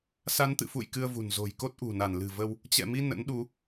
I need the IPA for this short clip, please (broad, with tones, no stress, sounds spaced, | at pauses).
s a˨˦ n t̪ ɨ̰˧˨ f ṵ˧˨ j k ɨ˧ ə̯ v ṳ˨˩ n z o̤˨˩ j k o˦˥ t̚ ʔ ṳ˨˩ n a˧˩ n l ɨ̤˨˩ v ə˧ w | t͡ɕ ɛ̰˧˨ m i˧ n ə̰˧˥ n ɗ u˨˦